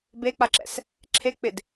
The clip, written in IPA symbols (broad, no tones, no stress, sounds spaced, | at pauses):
b e k͡p a ǁ ɛ̰ s | ǁʰ e k͡p ɪ d